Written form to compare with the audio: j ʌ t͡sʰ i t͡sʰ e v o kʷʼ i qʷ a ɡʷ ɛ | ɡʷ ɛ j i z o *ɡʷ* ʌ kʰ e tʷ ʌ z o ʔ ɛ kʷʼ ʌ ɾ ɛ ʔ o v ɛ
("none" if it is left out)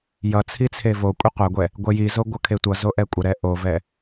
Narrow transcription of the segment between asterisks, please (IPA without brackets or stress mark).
ɡʷ